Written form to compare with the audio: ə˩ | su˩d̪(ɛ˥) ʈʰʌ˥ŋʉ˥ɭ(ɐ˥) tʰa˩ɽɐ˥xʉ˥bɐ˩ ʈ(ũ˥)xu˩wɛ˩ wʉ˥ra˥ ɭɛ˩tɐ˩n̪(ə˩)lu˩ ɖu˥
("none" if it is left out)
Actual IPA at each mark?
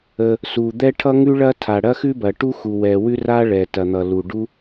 ɛ˥, ɐ˥, u˥, ʌ˩

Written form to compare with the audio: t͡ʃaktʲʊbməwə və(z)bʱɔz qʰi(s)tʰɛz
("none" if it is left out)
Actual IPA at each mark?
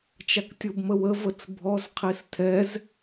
t͡s, s

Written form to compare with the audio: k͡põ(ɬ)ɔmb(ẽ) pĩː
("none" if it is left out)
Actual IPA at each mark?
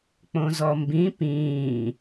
z, ĩ

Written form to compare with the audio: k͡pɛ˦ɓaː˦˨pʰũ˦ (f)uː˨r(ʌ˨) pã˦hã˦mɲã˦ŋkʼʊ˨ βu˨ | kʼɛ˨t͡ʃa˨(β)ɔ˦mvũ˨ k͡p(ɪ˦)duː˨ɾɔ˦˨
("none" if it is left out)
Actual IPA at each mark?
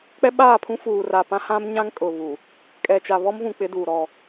f, a˨, β, ɪ˦

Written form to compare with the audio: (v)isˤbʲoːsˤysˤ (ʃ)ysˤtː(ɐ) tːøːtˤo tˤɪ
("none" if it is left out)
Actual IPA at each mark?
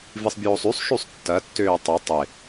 v, ʃ, ɐ

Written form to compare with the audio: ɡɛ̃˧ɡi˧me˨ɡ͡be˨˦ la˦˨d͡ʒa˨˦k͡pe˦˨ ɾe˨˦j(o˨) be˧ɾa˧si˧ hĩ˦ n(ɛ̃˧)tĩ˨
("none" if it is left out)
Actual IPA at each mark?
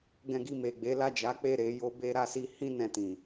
o˦, ɛ̃˧

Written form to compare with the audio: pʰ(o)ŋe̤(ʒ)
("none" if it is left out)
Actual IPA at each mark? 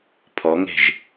ɔ, ʒ

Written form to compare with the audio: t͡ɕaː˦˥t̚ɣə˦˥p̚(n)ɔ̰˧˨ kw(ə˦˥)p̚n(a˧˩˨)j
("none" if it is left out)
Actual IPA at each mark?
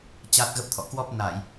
t̪ʰ, ɔ˦˥, a˧˩˨

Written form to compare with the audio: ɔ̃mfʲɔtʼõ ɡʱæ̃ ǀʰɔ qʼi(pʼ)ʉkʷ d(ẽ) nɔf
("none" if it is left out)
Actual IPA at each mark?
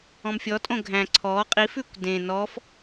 f, ẽ

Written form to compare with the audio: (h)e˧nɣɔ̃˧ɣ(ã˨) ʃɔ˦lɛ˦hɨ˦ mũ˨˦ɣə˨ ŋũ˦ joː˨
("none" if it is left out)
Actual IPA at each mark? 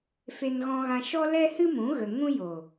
f, ã˧

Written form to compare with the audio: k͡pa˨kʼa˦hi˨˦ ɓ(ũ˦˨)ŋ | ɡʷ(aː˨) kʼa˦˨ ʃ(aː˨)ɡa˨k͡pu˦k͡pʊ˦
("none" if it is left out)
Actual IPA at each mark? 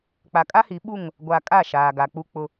u˦˨, a˨, aː˨

